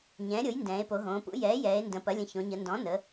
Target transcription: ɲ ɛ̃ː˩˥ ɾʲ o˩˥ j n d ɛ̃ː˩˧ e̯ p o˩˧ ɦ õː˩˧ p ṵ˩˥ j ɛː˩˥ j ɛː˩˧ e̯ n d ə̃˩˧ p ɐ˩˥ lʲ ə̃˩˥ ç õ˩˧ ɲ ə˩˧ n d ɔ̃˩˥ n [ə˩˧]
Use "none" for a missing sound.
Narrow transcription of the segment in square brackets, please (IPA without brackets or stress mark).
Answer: ə˩˧